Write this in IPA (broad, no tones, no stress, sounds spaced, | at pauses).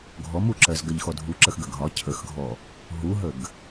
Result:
ɡʱ ɔ m u ǁ ɜ z ɡ ɜ ʎ x ɔ dʱ u ǁ ə x ɡ ə ɡʱ ɒ cʰ ə x ɡʱ ɔ | ɦ u ɦ ə ɡ